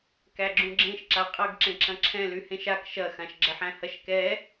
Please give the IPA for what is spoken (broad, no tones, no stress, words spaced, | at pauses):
kæɡ͡ǁũɡ͡ǁẽʃ ǁaqʼɐɡ ǁẽǁɐ̃ǁʰɛ̃ lyhẽʃak ʃɐxãʃ ɡ͡ǁɐħæ̃hɐʃkɛ